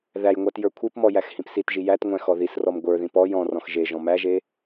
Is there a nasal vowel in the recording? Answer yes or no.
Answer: yes